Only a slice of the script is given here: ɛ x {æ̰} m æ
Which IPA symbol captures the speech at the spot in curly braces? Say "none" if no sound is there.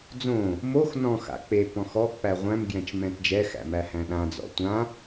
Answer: æ̰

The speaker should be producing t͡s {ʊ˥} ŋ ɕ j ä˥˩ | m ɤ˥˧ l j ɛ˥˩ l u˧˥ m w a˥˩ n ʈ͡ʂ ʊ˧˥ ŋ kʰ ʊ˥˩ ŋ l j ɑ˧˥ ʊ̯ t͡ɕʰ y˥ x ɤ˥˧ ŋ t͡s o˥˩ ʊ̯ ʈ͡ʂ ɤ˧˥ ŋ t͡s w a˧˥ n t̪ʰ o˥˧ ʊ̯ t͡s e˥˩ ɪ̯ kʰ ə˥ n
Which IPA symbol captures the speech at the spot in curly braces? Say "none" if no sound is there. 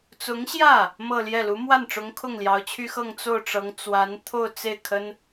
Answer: ʊ˧˥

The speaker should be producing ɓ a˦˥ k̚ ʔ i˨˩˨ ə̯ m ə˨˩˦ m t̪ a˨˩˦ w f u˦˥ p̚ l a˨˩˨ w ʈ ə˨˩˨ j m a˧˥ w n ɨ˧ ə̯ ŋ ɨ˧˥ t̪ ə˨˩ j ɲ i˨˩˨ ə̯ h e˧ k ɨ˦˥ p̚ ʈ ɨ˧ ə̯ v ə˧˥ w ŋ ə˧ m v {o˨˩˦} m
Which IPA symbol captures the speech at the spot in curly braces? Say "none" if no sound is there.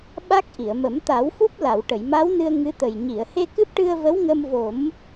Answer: o˨˩˦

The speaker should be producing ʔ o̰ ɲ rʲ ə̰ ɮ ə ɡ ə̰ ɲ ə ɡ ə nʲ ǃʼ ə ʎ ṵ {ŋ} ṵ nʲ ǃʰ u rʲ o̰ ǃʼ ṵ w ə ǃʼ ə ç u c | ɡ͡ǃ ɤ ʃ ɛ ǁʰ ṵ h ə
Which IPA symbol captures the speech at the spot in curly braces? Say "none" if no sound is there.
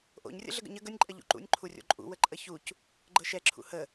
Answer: ǃ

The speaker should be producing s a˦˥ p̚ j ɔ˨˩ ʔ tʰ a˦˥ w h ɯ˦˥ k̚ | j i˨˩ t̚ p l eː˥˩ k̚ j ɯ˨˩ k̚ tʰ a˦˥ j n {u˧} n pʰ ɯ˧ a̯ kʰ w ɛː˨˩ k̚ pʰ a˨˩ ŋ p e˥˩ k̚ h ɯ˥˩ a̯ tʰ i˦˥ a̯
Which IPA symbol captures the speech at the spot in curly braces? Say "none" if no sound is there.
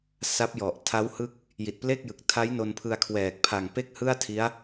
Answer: o˧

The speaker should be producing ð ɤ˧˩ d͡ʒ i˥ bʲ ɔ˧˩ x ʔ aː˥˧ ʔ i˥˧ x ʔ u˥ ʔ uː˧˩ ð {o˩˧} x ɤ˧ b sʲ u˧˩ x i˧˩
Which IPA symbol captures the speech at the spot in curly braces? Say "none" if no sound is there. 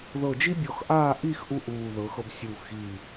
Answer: ɤ˩˧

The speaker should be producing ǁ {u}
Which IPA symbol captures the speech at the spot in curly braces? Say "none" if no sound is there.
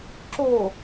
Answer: o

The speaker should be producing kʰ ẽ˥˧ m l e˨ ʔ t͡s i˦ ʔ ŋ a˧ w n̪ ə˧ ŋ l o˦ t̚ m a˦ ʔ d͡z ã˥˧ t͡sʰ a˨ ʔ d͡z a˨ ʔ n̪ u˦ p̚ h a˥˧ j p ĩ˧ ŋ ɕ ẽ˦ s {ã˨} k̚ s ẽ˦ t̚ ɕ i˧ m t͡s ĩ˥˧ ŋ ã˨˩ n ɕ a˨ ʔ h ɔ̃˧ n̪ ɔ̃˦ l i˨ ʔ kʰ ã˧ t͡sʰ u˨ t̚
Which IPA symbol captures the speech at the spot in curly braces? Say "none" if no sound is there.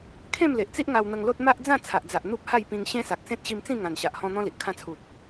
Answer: a˨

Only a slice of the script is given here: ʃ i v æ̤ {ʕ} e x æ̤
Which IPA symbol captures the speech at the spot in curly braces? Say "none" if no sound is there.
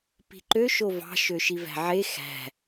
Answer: ʕ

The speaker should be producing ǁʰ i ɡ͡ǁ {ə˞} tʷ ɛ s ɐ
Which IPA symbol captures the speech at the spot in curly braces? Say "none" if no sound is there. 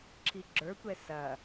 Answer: ə˞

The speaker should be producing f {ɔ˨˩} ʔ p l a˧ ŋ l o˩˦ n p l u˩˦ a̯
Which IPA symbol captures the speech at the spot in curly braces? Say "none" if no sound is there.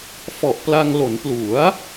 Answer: ɔ˨˩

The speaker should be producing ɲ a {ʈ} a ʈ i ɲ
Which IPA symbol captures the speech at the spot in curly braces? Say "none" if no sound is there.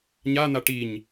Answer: n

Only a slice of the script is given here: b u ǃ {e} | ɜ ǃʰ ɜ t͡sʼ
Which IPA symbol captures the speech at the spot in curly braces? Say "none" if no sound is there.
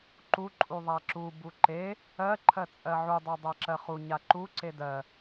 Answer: e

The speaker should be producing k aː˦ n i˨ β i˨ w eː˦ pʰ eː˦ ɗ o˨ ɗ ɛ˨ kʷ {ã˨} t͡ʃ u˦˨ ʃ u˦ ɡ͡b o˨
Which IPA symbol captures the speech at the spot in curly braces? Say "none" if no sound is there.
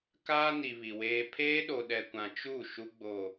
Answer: ã˨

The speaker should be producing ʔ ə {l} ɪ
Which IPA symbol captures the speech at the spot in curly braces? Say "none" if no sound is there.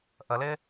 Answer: l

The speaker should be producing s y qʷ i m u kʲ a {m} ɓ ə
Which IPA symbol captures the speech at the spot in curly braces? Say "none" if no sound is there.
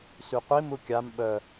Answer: m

